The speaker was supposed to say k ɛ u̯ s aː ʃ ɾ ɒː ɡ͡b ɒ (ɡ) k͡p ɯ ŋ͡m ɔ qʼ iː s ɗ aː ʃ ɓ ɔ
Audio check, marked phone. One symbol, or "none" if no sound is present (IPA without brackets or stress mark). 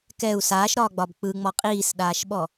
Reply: b